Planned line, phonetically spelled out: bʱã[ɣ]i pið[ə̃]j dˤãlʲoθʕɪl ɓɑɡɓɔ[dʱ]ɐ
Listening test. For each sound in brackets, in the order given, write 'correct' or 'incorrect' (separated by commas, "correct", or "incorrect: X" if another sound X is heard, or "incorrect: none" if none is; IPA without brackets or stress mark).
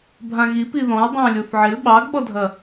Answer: correct, incorrect: ɔ̃, correct